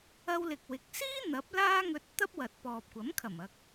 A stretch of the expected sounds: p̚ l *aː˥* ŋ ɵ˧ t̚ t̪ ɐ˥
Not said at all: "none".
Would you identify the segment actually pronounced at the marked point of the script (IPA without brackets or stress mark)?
aː˥